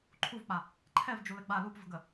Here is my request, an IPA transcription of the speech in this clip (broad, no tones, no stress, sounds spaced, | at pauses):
ǃʰ u v k͡p a | ǃʰ ɛ v d͡ʒ u l ɘ ɡ͡b a l u p v ə̤ ɡ ə